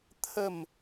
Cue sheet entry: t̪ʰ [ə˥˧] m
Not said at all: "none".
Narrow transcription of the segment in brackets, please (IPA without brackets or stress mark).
ə˥˧